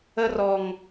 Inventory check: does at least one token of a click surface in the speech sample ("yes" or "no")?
no